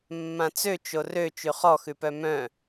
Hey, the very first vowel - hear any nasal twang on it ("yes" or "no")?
yes